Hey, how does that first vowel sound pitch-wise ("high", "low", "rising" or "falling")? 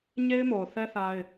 high